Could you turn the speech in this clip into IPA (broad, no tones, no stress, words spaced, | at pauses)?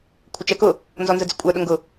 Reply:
kʷʰət͡ʃɛkʊ | nzɔnzəd͡zɪkʷʼə˞ ɗʊŋɡʊ